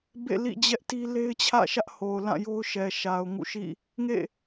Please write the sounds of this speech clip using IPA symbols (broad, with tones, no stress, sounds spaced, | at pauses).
b ḛ˦˨ l ḭ˦˨ d͡ʑ ɛ˦ ʔ t i˦ l e˦ ɪ̯ t͡ɕʰ ä̰˦˨ ʃ ä˦ ʔ h o˨ ʊ̯ l ã˦˨ j o˦ ʊ̯ ʃ ɛ˨ ʃ a˨ ʊ̯ ŋ ṵ˦˨ ʃ ḭ˦˨ | ŋ ḛ˦˨